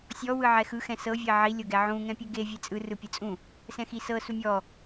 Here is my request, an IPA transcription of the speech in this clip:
sʲɔ wɯʕɛxɯ xɛ̃sɤ vʲeʕi lʲoɡɛʕũ ŋɛ̃pʲɯɡe vʲet͡sʼɯ rɯpʲɯt͡sʼũ | sɛ̃xisɤ sumʲɔ

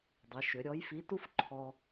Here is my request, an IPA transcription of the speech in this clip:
dˤɘ˩˧ʃʏ˩˧ɾʲɔ˧˥jfi˧˥ tu˥fǃʰɔ˧

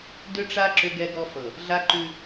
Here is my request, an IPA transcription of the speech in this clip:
dʏ˦ʈ͡ʂa˦ ǁʏ˦ɡɛ˦ɡɔ˦ fɤ˨ | ɮa˦ǃʉ˦

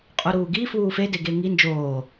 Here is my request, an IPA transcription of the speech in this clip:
qʼuɾuːɡi fuːfe deɡeŋi nd͡ʒoː

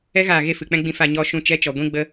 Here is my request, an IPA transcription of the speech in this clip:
ɛ˦ɣaː˨ ɣe˦˨fɨ˨k͡pɛ̃˦ ɡ͡bĩ˧fa˦˨ɲɔ˦ ʃũ˧ t͡ʃɛ˦˨ t͡ʃɔ˨ɡʷĩ˦ ɡ͡bə˧

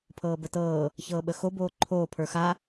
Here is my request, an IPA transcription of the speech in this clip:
pʰɤːbətɤː | çɤːɓəxo boːǃʰoː pʰə˞xa

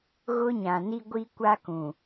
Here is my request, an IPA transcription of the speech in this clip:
ɣʊ˦ɲã˨ni˦ ɡʷi˦kʷa˦kũ˨

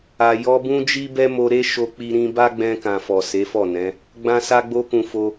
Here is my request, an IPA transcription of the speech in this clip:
a˨jɔ˧ bũ˦d͡ʒi˦bɛ˦mo˧ ɾe˦ ʃo˧k͡pi˧ ɾĩ˧ba˦ ɡ͡bɛ̃˧kã˨fɔ˨ se˨˦fɔ˦˨nɛ̃˨˦ | ɡ͡bã˦sa˦ɡ͡bo˦kũ˧ fo˧

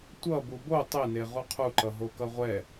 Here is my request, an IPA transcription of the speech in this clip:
tʷʌ bubo tˤene ʁuqʰuǃʌ ɦokʌʁʷɛ

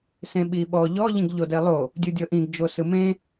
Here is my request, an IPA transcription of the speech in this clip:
sẽɓiɓɔ ʎɔ ʎĩɡʎodelˠo | dʲudʲɤʔĩɡ d͡ʒosɯmẽ

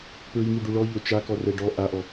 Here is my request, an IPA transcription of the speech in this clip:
pɹiŋiɖu ɭɔʎo t͡ʃakɔrɛ ɖɔ ʔaʔɔ

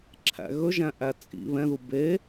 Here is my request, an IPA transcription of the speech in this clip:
ǁʰæ̰ɣɵʒæ̃ʔæ t͡sʼḭ βɛ̃ðu be

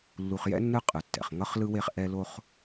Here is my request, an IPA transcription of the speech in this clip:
lːu˨χjɛ̰˥nːɯ˦ qʼɯ˩tːɛ̰˩χŋʌ˦χ lɯ˦we˦χ ʔɛ˦lo˥χ

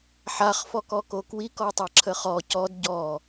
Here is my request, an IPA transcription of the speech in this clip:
ħaχfɔkɔko kwikɔtˤaǁʰə χɔ cɔd ɟɔ

